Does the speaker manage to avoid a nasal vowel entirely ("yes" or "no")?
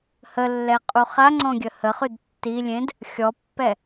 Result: no